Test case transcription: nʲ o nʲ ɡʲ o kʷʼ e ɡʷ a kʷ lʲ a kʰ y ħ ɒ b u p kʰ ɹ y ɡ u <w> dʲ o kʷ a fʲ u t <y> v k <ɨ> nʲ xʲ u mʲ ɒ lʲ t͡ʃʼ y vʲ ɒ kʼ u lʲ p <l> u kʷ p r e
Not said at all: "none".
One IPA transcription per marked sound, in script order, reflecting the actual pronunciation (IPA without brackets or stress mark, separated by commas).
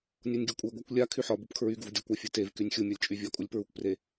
v, e, y, ɹ